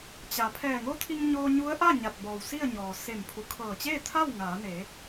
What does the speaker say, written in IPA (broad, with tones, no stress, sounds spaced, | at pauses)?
t͡ɕ a˩ pʰ ɛː˧˩ ŋ o˧˥ t̪ʰ i˧ ŋ ɲ oː˧ ɲ u˧˥ ə̯ ʔ a˥˨ ɲ a˧˩ t̚ b ɔː˩ w s i˥˨ ə̯ ɲ ɔː˩ s e˧˩ m pʰ u˩˧ kʰ ɤː˧˩ t͡ɕ eː˥˨ t̪ʰ a˥˨ w ŋ aː˩˧ n e˩˧